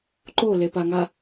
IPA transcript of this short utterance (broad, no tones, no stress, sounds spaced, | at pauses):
ǃ o l e p a ŋ a